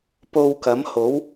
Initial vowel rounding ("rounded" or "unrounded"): rounded